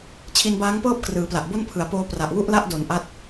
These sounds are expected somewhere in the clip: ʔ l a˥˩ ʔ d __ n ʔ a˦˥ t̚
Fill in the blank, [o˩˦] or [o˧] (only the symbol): o˩˦